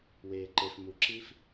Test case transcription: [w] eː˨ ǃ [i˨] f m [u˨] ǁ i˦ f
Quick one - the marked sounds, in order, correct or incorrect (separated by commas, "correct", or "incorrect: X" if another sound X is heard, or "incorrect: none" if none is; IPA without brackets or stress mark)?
correct, incorrect: e˨, correct